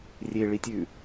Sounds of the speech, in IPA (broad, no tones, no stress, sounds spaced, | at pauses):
rʲ e ɭ i tʲ ʉ